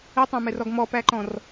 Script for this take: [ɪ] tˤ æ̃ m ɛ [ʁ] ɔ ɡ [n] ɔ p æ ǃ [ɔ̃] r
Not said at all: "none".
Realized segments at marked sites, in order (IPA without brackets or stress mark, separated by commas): ɪ, r, m, ɔ̃